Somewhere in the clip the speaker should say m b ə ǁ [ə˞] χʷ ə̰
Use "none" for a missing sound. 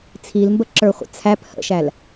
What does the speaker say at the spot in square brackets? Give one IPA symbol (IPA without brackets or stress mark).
ə˞